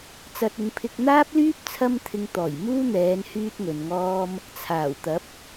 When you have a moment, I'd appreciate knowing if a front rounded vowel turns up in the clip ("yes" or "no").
yes